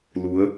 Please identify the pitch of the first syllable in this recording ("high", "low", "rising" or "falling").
rising